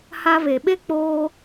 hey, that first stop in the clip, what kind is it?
implosive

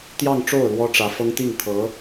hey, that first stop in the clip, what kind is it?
plain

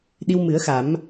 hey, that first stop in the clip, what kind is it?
implosive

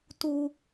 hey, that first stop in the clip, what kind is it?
plain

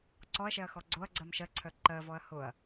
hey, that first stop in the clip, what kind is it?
click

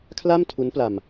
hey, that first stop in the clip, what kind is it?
aspirated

